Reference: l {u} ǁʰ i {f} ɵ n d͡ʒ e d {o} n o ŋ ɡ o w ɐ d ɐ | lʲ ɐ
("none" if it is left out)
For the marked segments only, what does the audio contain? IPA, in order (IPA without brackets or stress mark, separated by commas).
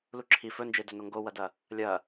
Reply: u, f, ɵ